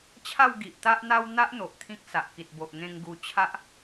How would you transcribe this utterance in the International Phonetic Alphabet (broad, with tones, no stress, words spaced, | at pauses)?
t͡ɕʰa˥˧wɡi˨ʔt̪a˦ʔn̪a˦w n̪a˦ʔn̪o˨ʔ t̪ʰĩ˦k̚sa˨ʔki˨t̚ bo˨ʔŋẽ˧ŋ ɡu˧t͡ɕʰa˦ʔ